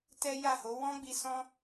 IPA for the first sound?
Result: t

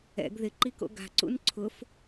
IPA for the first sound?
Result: ɛ̰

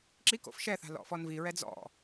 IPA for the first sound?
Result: ǁ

